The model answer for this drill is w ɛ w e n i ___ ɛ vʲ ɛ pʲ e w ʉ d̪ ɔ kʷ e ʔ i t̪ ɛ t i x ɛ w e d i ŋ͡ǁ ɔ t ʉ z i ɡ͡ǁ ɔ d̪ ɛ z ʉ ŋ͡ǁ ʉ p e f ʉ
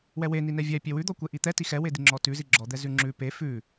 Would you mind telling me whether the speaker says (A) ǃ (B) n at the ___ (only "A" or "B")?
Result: B